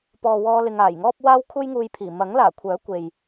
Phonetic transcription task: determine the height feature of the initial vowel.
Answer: mid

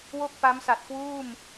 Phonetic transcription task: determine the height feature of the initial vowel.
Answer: mid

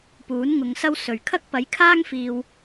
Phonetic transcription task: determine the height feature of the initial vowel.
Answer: high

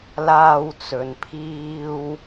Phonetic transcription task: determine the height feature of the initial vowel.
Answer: low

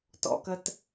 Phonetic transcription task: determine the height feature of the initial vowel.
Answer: mid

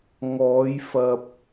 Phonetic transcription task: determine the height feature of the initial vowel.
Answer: mid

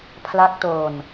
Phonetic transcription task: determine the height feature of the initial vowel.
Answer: low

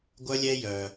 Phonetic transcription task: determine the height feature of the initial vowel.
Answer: mid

